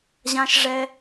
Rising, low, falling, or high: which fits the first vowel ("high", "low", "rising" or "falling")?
high